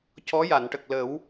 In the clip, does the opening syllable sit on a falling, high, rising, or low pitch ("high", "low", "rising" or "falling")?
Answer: rising